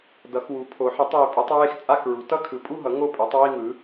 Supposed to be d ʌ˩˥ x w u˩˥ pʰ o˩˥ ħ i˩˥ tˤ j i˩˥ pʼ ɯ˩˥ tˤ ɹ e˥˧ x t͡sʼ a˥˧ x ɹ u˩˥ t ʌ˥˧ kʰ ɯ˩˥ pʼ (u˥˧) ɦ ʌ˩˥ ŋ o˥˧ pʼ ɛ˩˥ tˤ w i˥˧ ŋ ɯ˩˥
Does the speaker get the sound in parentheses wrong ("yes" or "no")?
no